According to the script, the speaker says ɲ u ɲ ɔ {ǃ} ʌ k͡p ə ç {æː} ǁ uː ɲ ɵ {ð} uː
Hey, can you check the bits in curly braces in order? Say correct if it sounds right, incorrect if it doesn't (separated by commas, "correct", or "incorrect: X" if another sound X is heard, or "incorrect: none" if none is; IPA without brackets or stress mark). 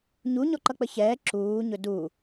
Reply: correct, incorrect: ɛː, incorrect: d